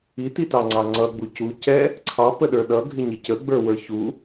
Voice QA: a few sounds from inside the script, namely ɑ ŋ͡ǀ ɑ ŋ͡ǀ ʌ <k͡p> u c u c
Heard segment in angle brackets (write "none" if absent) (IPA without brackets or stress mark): ɡ͡b